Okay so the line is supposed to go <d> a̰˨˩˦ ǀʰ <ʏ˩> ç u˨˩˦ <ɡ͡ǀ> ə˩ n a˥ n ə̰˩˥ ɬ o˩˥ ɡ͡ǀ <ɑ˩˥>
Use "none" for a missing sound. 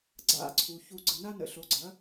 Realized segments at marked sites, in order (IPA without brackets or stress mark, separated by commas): ɡ͡ǀ, u˩, ɡ͡ǀ, ɐ˩˥